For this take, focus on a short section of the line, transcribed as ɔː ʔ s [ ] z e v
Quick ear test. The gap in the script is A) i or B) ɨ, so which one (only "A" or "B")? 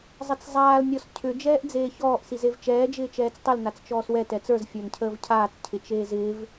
A